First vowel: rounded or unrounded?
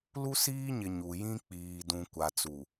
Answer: rounded